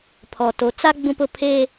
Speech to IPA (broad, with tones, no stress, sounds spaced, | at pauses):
pʰ ɔ˨ t o˨˦ t͡s a˦ ɡ͡b ũ˦ p ʊ˦ pʰ e˦